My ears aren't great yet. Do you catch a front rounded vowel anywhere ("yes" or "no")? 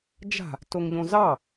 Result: no